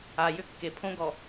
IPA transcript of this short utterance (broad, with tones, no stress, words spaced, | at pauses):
a˨jʏ˦kːe˨ pʰõ˦ɡɔ˨